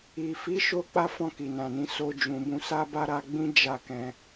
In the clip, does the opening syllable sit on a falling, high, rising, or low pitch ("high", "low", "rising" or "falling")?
low